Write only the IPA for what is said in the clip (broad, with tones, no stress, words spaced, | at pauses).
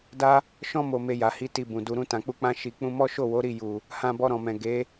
da˦ | ʃɔ̃˦ mo˧me˧ja˨hi˧ ti˧bũ˨ du˨ɾũ˧ tã˨k͡pu˧k͡pã˧ ʃi˨k͡pũ˧mɔ˦ ʃo˦˨wo˨˦ɾi˦˨ ju˨ | hã˧bɔ˧ɾɔ̃˨mɛ̃˨ ɡe˨˦